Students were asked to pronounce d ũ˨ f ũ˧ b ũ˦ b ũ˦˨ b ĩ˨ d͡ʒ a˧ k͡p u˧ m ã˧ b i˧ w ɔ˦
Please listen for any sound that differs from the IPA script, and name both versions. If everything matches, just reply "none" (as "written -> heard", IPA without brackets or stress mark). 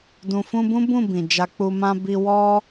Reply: none